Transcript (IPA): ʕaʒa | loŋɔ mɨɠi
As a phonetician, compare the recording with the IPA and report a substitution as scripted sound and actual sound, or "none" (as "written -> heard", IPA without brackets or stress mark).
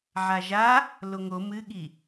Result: ɔ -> o